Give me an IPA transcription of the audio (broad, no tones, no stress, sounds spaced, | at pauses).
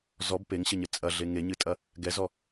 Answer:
z ɔ b p e ŋ ɕ ɘ ɲ ɘ t͡sʼ ɐ ɮ e ŋ e ɲ ɨ tʼ ɐ | ɡ ɛ z ɔ